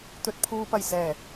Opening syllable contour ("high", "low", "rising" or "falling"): low